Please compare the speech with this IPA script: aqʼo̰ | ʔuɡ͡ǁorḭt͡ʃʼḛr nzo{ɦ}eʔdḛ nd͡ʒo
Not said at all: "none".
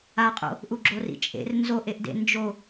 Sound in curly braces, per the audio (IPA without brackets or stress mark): ʔ